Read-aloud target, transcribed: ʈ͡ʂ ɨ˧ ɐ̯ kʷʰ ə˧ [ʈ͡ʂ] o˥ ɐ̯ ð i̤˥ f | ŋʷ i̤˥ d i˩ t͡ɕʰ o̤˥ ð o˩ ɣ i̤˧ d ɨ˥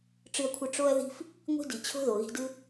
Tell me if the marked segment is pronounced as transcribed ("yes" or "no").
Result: yes